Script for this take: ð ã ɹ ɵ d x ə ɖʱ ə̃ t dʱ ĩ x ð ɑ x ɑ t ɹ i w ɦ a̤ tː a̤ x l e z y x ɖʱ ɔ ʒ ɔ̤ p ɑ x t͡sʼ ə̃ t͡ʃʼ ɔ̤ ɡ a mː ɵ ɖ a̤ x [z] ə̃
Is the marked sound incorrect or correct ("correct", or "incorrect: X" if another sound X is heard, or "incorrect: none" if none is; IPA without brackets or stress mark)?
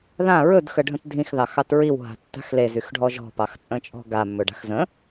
correct